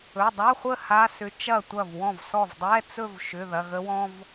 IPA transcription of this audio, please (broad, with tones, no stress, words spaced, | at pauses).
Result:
ɵ˩˧˩dˤa˧˥˧χʷə˥˧ ha˧˥˧sʏ˧˥t͡ʃɐ˥˩ tʷɐ˥˩vwɔ̃˥˩vsɔ˥˩v dˤɛ˧˥˧t͡sɵ˥˧vʃʏ˩˧˩ ðɐ˩˧˩ɣə˧˥wɔ̃˧˥˧v